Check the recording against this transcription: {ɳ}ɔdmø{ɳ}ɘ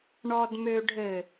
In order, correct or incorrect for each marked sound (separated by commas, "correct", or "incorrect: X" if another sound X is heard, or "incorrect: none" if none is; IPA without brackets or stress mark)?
correct, incorrect: ɖʱ